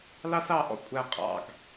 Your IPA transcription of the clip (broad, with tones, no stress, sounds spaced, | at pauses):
l ɑ˦ s ɑ˨ ʔ ɔ̰˦ kʷʼ æ˨ qʼ ɑ̰˨ ɡ